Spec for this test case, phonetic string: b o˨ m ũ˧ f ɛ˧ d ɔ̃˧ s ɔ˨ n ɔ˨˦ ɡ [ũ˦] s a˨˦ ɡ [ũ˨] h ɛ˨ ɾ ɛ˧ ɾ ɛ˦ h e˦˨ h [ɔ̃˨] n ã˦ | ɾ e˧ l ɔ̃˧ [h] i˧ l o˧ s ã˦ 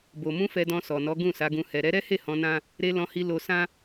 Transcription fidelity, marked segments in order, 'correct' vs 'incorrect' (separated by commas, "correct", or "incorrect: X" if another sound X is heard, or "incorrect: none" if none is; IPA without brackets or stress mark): incorrect: ũ˦˨, incorrect: ũ˧, incorrect: ɔ̃˧, correct